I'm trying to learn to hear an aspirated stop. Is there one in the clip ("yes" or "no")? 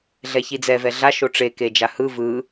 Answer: no